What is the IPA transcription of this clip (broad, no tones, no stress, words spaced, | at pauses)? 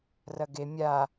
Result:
rɐɡe mʲa